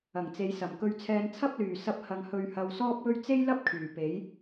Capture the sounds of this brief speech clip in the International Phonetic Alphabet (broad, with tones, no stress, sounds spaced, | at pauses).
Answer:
ɐ˨˩ ŋ t͡s e˨˧ j s ɐ˨˩ m k ɵ˧ ɥ t͡sʰ ɛː˧ n t͡sʰ ɐ˥ p̚ l yː˨˩ s ɐ˧ p̚ h ɐ˨ ŋ h ɵ˨ ɥ h ɐ˨ w s ɔː˥ p̚ w ɵ˥ ɥ t͡s e˥ j l ɐ˥ p̚ kʰ yː˨˩ p e˨˥ j